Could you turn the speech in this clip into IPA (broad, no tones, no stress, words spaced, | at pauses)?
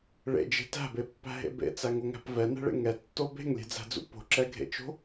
ɭḛd͡ʒe̤ tæ̤bepːæ̤ɦḛ bḛt͡sæŋoŋæ̤p vɛnɛ̤ɭḛ ŋɛtːo be̤ŋlʲe̤d͡zæ̤d͡zṵ po̤ǁɛɡʱḛt͡ʃo̤